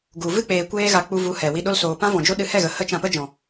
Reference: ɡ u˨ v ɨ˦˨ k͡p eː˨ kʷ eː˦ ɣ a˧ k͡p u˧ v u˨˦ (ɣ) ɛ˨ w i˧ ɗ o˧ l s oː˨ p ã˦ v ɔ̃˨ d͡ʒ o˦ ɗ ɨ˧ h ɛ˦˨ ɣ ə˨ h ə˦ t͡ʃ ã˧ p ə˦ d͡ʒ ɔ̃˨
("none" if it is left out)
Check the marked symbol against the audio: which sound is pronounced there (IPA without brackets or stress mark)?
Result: h